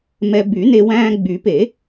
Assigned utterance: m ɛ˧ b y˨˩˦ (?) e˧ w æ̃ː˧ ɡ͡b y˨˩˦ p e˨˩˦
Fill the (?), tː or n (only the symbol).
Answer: n